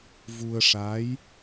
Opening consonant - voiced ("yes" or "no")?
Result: yes